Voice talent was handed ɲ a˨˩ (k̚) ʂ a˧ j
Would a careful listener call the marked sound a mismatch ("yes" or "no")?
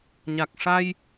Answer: no